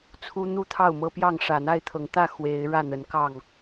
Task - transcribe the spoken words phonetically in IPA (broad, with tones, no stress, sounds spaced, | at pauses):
t͡sʰ u˦ n̪ u˥˨ t̪ʰ ɑ˥˨ ʊ̯ m ɤ˦ p j ɑ˥˨ ŋ ʂ ä˨˩ n̪ a˥˨ ɪ̯ t̪ʰ ɤ˨˦ ŋ t̪ ä˥˨ x w e˨˦ ɪ̯ ɻ ä˥˨ n̪ ə˨˦ n k ɑ˥˨ ŋ